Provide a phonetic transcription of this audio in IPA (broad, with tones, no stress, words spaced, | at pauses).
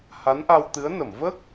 ha˧˥nʔa˧wt̪ɨ˧˥ə̯ nə˨˩˨mvə˦˥k̚